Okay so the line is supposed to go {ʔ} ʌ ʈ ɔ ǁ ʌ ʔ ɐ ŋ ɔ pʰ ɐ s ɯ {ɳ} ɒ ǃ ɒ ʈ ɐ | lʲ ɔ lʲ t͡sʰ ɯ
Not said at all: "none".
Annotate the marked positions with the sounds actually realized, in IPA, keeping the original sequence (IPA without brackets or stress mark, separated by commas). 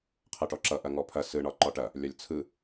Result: qʰ, ɳ